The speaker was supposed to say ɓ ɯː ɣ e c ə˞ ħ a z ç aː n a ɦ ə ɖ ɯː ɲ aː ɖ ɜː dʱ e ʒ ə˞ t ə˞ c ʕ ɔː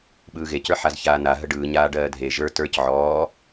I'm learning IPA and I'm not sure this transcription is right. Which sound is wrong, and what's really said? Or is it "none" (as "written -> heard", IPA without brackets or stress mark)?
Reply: none